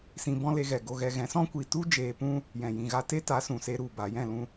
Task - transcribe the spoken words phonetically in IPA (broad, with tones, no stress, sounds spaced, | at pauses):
s ĩ˧ b ɔ̃˦ l e˧ ɣ ɛ˨ ɡ o˧ ɣ ɛ˧ ɣ ɛ̃˨˦ s ɔ̃˦ kʷ i˨ t u˦ d͡ʒ eː˧ p ũ˦ | j ɛ̃˨ j ĩ˨ ɣ a˧ t e˦ t a˨˦ s ũ˨ s e˦ ɾ u˦˨ b a˨ j ɛ̃˦˨ l ũ˦